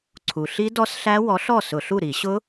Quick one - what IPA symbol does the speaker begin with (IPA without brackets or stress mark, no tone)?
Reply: ǀʰ